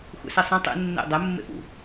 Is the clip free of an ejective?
yes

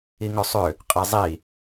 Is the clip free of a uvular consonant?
no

